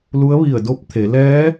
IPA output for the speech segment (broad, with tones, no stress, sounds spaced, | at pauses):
l u˧˥ ə̯ ʋ i˧˩ ə̯ d o˧˥ p̚ t̪ʰ e˩˧ l ɛː˧˥